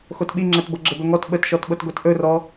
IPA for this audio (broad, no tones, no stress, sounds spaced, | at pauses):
x o t ɓ i ŋ͡ǁ ɛ t b ɤ ɡ͡ǁ ə b ɵ ŋ ɔ t ɓ ə t ʃ ɔ t ɓ ɤ t ɡʷ ɛ t ʔ ɵ r ɔ